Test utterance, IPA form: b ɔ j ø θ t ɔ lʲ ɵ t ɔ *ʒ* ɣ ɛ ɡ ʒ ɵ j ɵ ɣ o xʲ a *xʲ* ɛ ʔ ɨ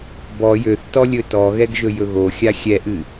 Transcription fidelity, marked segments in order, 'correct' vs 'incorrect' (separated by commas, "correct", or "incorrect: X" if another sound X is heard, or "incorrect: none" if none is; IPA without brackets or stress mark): incorrect: none, correct